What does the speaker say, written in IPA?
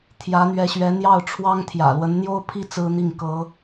t̪ʰ j ä˧˥ n̪ ɥ ɛ˧˥ ɕ ɥ ɛ˧˥ n̪ j ɑ˥˩ ʊ̯ ʈ͡ʂʰ w ɑ˥ ŋ t̪ʰ j ä̰˨˩ l w ə˧˥ n n̪ j o˥ ʊ̯ pʰ i˥ t͡s ɹ̩˥ n̪ i˥˩ ŋ k ɤ˧˥

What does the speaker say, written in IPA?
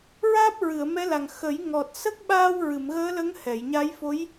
ɹ aː˦˥ p̚ ɹ ɨ˨˩˨ ə̯ m ɛ˧˥ l a˨˩ ŋ x ə˨˩˦ j ŋ ɔ˨˩ t̚ s ə˦˥ k̚ ɓ aː˧ w ɹ ɨ˨˩˨ m ɣ əː˧˥ l ə˧˥ ŋ h ɛ˨˩˨ j ɲ a˧˥ j f o˧˥ j

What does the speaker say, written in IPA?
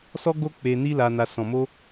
s ɔ˦ ɡ o˦ k͡p e˧ n i˦ l a˧ n a˧ s ɔ̃˨ m o˧

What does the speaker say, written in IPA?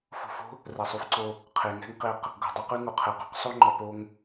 f ṳ˧ f o̤˦ | r ɛ˨ sˤ ʉ˧ f ǀ o˧ | qʰ e˨ ŋ ɛ̤˦ ŋ q e˧ q | ɡ o̤˨ dˤ o˦ q ʉ˦ ŋ o˨ qʰ ɛ˨ q o̤˦ q sˤ o˦ ŋ͡ǃ ɔ˨ p o˧ ŋ

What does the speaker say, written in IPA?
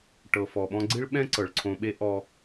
ʈ ɤ˩ f ɔ˩ ɓ ɔ̃˦ ɡ͡ǀ i˥ ɭ ɓ ɛ̃˥ ǀ ɤ˩ ɭ ǀʰ õ˨ ɓ e˦ ʔ ɔ˨

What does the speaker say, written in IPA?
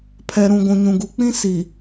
pʰ ɛ˨ ɾ ũ˨ ɡʷ ũ˨ ɲ ũ˨ ɡ u˨ k͡p ĩ˦ s i˨

